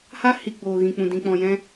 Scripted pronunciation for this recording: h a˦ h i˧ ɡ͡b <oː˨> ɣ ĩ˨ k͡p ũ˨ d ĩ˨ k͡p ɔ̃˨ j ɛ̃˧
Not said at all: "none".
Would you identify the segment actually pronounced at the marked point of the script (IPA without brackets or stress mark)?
oː˨